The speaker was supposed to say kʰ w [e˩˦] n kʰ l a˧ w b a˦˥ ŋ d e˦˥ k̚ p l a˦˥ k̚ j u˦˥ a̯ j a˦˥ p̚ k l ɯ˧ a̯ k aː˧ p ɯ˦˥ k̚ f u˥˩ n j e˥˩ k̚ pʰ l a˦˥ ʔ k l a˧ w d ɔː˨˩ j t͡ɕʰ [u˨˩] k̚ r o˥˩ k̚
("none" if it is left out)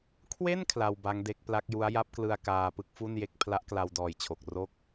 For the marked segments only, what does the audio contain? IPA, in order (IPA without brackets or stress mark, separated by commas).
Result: e˥˩, o˨˩